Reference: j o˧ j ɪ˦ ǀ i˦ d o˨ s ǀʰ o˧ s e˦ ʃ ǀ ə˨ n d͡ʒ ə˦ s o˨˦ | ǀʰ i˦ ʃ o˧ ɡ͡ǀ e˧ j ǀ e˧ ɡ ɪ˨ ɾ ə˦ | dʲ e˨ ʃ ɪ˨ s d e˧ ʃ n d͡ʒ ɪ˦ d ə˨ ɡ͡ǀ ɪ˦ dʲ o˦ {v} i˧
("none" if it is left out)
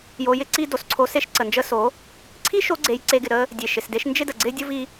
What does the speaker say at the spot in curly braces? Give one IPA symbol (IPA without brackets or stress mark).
v